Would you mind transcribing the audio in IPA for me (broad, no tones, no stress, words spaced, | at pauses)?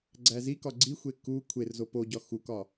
ɡ͡ǀæzikɒ ɡ͡ǀixʷe ku kʷʰerzo poɟɒ xukɒ